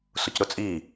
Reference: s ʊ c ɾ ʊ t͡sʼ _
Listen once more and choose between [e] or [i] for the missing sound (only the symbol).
i